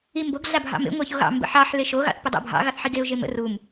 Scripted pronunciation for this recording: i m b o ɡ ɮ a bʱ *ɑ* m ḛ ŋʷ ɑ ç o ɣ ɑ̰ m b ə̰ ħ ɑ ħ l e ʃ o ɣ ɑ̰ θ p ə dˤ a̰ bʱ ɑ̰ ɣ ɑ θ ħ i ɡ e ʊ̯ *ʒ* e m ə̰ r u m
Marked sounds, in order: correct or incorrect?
incorrect, correct

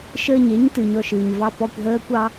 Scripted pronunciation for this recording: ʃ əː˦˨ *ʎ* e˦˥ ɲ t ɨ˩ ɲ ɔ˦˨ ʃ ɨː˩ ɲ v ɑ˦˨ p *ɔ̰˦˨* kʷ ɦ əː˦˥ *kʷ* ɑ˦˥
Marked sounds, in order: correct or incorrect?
incorrect, incorrect, correct

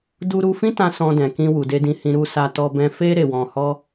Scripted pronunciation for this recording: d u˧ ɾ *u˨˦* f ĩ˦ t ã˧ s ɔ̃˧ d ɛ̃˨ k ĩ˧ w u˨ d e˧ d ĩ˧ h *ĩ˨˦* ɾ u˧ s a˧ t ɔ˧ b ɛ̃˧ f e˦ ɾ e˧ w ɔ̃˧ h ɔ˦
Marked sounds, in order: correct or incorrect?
incorrect, incorrect

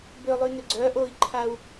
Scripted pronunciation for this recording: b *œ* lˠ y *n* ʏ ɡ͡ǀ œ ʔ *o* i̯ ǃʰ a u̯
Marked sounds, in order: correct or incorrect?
incorrect, correct, correct

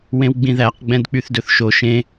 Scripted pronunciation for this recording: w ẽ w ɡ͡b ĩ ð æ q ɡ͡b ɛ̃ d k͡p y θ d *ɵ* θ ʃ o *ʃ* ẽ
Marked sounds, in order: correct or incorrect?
correct, correct

